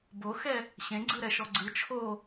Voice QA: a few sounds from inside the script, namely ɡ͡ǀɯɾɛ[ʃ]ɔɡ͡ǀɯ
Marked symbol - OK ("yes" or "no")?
yes